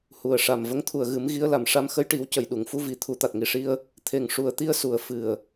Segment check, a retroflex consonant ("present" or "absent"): present